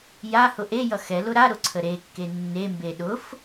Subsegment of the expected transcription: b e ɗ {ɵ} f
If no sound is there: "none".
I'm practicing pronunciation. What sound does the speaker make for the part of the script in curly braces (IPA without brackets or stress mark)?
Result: ʊ